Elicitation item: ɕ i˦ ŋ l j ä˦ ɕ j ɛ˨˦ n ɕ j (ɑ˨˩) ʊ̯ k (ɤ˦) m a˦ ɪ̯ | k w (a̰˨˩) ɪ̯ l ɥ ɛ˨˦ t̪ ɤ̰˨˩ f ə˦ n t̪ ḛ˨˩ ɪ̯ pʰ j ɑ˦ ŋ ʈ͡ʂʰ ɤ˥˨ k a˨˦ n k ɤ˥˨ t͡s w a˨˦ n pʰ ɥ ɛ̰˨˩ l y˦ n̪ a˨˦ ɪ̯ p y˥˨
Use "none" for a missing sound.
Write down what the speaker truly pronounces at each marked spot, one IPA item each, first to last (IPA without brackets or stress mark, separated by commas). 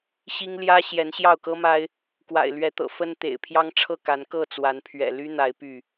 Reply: ɑ˥˨, ɤ˦, a̰˨˩